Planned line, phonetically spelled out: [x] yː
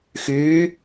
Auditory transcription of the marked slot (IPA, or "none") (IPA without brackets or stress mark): x